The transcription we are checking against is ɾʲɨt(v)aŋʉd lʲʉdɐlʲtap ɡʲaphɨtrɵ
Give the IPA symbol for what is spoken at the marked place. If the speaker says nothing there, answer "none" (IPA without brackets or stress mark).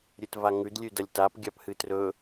v